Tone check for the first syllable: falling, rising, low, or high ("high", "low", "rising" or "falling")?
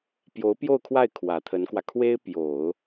rising